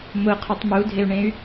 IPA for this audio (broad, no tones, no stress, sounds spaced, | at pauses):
m ʊ qʰ ʊ tˤ m u dʱ e u̯ ɳ ẽ y̯